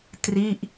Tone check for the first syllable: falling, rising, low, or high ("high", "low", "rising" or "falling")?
falling